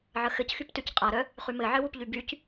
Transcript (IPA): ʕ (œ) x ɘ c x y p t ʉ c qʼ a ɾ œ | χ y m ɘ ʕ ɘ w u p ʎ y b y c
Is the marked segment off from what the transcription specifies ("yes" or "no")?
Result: yes